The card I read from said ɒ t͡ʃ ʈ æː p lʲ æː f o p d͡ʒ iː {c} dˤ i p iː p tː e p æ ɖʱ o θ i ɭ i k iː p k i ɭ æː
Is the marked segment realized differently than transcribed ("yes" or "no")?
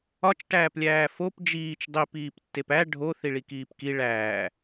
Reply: yes